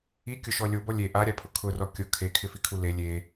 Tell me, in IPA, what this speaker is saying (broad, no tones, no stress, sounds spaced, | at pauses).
i kʲ ʊ ʃ ɔ lʲ o b ɔ lʲ e ʔ a ɾʲ a pʰ ʊ kʰ ʊ r ɔ kʲ ʊ kʰ e kʰ ɪ f i kʰ u l e lʲ e